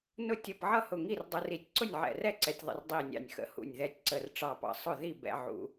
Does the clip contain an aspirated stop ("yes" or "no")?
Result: no